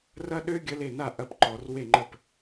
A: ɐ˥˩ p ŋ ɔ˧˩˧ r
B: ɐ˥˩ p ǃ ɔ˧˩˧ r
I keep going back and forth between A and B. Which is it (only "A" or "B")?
B